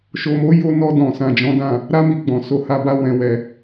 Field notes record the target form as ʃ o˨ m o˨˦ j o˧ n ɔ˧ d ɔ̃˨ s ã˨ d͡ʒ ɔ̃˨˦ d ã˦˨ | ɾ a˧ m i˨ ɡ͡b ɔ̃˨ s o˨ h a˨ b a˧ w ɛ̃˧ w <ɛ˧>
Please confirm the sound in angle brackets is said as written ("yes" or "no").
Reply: yes